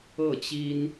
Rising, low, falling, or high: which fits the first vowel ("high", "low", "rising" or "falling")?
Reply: falling